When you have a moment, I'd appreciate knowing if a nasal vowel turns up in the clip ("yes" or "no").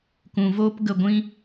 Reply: yes